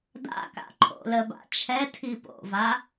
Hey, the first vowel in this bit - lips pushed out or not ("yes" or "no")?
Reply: no